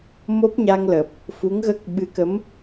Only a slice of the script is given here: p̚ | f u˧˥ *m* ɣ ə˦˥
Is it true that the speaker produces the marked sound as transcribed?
no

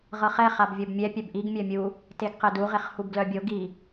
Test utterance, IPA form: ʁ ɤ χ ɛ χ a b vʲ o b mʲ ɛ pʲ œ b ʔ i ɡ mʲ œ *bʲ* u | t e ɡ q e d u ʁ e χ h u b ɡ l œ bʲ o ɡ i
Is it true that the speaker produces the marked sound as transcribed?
no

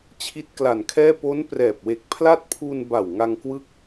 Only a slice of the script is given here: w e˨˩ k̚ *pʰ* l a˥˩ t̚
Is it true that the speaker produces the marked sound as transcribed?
yes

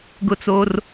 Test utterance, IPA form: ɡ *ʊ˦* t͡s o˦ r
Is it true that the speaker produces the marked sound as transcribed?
yes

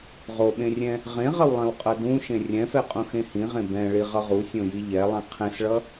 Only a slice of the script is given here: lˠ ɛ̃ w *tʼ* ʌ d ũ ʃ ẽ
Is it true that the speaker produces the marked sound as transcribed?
no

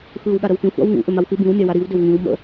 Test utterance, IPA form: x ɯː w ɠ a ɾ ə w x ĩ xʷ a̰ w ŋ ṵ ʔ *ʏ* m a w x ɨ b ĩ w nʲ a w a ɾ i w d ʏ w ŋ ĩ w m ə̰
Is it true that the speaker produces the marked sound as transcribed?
yes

